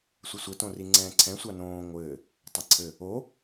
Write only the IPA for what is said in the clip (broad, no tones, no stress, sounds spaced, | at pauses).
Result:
sʷ ɘ sʷ ɘ t õ r i ŋ͡ǀ ɛ̃ː ǀʰ ɛ̃ sʷ a n õː ŋʷ ɘː | tˤ ɘ ǀʰ ɘ | o